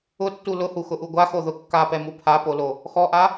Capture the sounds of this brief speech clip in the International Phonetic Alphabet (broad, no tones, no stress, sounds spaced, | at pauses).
ʊ tː u l ʊ h u x ʊ ʔ u ɡʷ a x o ð ʊ kː a p ɛ m u pʰ a p o l o | x ɔ ʔ a